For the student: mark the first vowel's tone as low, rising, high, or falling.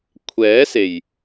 rising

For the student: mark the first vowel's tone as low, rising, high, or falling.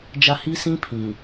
high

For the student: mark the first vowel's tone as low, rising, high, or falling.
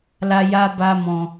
high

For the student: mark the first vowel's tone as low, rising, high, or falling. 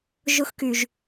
high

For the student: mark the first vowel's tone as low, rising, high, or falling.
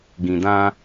low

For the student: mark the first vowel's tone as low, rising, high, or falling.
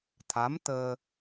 rising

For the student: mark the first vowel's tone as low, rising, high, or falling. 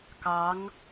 rising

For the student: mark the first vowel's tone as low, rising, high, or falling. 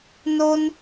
high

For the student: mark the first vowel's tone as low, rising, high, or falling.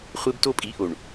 high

